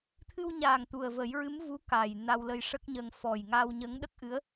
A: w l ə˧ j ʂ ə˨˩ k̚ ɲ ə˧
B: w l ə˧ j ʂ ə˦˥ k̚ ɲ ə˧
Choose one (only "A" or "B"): B